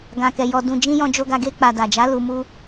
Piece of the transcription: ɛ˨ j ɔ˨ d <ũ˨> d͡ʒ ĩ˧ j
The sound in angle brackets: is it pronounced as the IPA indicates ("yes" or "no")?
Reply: yes